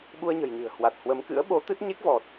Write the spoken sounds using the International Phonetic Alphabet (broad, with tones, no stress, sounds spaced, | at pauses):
ɓ u˧ ə̯ ɲ ə̤˨˩ j ɲ ɨ̤˨˩ ə̯ h w a˨˩ t̚ h w ə˨˦ m k ɨ̰˧˥ ə̯ ɓ o˨˦ t̪ ɨ˦˥ t̚ ɲ e˦˥ k̚ v ɔ˨˩ t̚